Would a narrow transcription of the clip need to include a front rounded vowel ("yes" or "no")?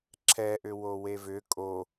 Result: yes